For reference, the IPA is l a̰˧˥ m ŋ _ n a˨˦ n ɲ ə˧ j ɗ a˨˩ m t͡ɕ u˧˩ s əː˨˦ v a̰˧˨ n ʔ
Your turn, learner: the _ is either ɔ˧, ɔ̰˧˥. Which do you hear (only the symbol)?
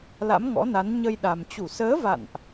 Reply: ɔ̰˧˥